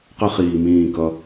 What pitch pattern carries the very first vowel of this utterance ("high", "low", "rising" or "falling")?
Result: high